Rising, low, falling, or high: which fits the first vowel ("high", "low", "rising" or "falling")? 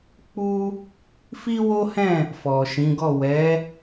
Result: high